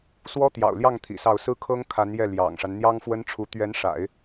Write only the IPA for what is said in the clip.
s w ɔ˥ t̪ j ɑ̰˨˩ ʊ̯ l j ɑ˥˩ ŋ t̪ʰ ḭ˨˩ s ɑ˥˩ ʊ̯ s ɹ̩˥ kʰ ɤ˥ ŋ kʰ a˧˥ n j ɛ˥˩ l j ɑ̰˨˩ ŋ ʂ a˦ n n̪ j ɑ˥ ŋ f w ə˥ n ʈ͡ʂʰ u˧˥ t̪ ɥ ɛ˧˥ n ʂ a̰˨˩˦ ɪ̯

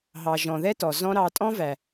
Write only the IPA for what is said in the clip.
ɦ ɑ˨ ʒ ɔ̃˨ ð ɛ˦ t ɔ˨ z ɔ̃˦ ɾ ɑ˧ tʼ ɔ̃˦ v æ˨

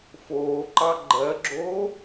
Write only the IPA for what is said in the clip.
f oː ǃ ɑ ɡ͡ǃ ɜ ɡ͡ǁ oː

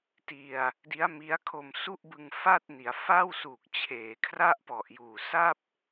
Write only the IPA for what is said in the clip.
t i˧ a̯ | d i˦˥ a̯ m i˦˥ a̯ kʰ o˧ m s u˥˩ ʔ b ɯ˧ ŋ f a˥˩ t̚ n i˩˦ a̯ f a˥˩ w s uː˨˩ k̚ t͡ɕʰ eː˩˦ kʰ r a˥˩ ʔ p ɔ˨˩ ʔ j uː˨˩ s a˥˩ p̚

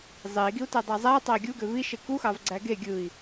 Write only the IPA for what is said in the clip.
zˤ e i̯ ɡ i u̯ t æ dˤ æ zˤ æ tˤ ɑ i̯ ɡʲ u ɡ ø v i ʃ e k u x ɑ v ɡ͡ǀ æ ɡ e ɡʲ ɯ i̯

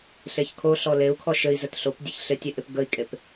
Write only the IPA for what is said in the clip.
ɬ e ç kʰ o ɬ ɔ l e u̯ kʰ ɔ ʃ ɘ i̯ z ə t ɬ o p dʲ ɘ ç ɬ ɪ tʲ e ʔ ɪ p ɡ ə i̯ kʼ e p

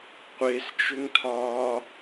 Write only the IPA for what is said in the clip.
qʷ e s t͡ʃ ʏ ŋ tʰ ɒː

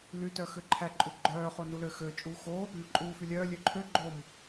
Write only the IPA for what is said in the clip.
l y t œ x ø ǃʰ æ ǃʼ u ɡ͡ǃ œː χ o n u l ø x ø t͡ʃʼ uː x o | m œ ǃʼ uː f y lʲ œː lʲ ø ǃʰ ø ɡ͡ǃ o m

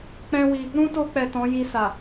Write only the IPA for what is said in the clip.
k͡p ɛ̃˦ w i˧ | ɾ ũ˦ t o˧ k͡p ɛ˨ t ɔ̃˨˦ j i˧ s a˨

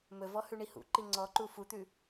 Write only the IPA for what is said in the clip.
m ɵ v ɔ h ʉ ɳ i h ṵ ǃ i ŋ͡ǀ ɔ ǃ u f u t̪ ʉ

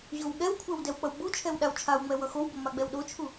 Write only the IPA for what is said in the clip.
ʑ o w ɠ ɛ w kʷʰ ɛ w d ɛ w k͡p ʌ w ɡ͡b u t͡ʃʰ ɛ w ɗ a w t͡ʃʰ a w ŋ͡m ɛ w ʌ x o w b o m a ɡ͡b ɛ w ɗ o t͡ʃʰ u

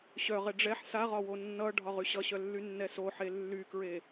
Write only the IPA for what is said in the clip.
ɕ œ ʁ ɛ ɖ͡ʐ ɛ ħ s a ʁ ɒ w o nː ʌ ɖʱ ɒ ʁ y ɕ ʌ ɕ œ lː y nː ɛ s o ħ e lː y k ɹ e

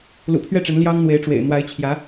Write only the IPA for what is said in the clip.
l ṵ˨˩ pʰ ɥ ɛ˥˩ ʈ͡ʂ ə˧˥ n l j ɑ˥ ŋ n̪ w e˧˥ ɪ̯ ʈ͡ʂ w ḛ˨˩ ɪ̯ n̪ w a˧˥ ɪ̯ t͡ɕʰ j ä˧˥

